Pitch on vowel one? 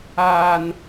low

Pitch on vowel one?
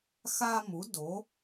high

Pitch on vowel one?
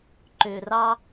low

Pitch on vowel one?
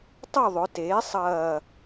falling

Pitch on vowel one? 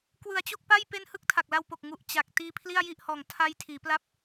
low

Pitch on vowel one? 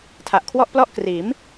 low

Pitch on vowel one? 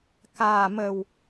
low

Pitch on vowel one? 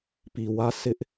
low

